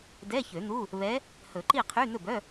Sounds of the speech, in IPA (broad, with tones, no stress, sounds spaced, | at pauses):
d ɛ˧˥˧ ç ø˨˩˦ n̪ u˧˥˧ | β ɛ˧˥ | h ɵ˨˩˦ ǃ i˥˨ qʰ y˧˥˧ n̪ ɵ˥˨ b œ˧˥˧